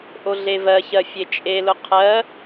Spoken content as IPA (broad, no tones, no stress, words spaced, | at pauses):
ʔoɮevɜçɜ fʲet͡ʃʼelʊ qʰɜ